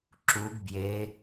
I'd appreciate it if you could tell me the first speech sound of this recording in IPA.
ǁ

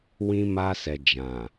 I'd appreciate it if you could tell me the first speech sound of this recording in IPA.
w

